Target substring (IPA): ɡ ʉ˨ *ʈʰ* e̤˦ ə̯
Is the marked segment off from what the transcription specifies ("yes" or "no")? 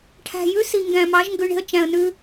yes